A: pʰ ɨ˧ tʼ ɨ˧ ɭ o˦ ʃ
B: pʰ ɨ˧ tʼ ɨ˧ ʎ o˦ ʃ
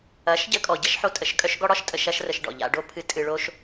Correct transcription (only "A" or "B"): A